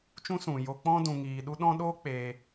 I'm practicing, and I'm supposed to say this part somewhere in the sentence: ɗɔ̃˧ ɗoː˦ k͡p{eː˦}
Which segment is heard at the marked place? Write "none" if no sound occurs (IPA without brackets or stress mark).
eː˦